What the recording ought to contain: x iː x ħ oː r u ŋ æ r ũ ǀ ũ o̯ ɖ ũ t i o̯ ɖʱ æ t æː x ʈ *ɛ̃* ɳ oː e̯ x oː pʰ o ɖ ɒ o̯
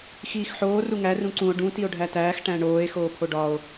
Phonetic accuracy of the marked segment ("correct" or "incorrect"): incorrect